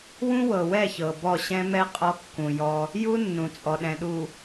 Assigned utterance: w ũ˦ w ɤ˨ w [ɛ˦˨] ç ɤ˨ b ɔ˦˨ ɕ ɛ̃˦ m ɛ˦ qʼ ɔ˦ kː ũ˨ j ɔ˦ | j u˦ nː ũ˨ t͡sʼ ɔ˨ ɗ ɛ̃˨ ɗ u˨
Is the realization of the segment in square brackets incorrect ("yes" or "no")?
no